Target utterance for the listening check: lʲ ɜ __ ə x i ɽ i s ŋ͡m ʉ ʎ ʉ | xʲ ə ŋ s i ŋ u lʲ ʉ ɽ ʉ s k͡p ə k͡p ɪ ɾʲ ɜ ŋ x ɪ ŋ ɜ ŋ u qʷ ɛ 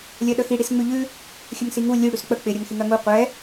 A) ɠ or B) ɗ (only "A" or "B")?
B